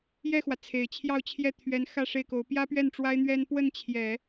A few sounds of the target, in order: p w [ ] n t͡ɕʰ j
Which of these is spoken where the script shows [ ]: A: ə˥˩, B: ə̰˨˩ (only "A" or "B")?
A